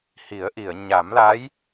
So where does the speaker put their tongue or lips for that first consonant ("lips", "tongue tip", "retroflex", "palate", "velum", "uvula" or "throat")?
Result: throat